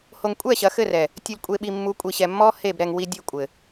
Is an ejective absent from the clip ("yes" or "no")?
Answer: no